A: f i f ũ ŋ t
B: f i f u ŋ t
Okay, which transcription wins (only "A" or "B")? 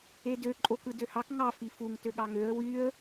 B